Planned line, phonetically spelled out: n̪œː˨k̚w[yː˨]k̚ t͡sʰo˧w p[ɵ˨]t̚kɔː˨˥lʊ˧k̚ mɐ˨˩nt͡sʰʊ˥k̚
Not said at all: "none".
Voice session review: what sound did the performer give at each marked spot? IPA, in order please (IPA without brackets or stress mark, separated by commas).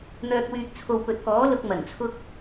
yː˨, ɵ˨